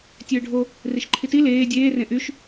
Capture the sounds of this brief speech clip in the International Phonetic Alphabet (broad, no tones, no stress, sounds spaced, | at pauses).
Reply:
tʲ øː ɖʱ o | r i ʃ ǃʰ i t i l eː dʲ eː r ẽ ʔ y ʃ